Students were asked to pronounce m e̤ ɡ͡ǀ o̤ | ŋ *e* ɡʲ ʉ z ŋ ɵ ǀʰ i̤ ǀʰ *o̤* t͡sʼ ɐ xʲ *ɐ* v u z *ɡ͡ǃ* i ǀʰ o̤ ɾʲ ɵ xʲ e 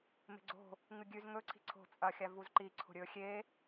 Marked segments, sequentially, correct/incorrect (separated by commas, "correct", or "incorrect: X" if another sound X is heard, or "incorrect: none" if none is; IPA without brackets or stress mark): incorrect: ɨ, correct, incorrect: a, incorrect: ǃ